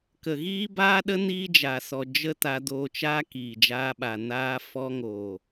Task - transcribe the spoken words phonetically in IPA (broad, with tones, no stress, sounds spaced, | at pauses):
k ə˨ ɣ iː˦ b aː˦ ɗ ə˦ n iː˦ d͡ʒ aː˨ s ɔ˨ d͡ʒ ə˦ t a˧ d oː˧ t͡ʃ aː˦ k iː˨ d͡ʒ aː˧ ɓ a˨ n aː˧ f ɔ˧ ŋ oː˨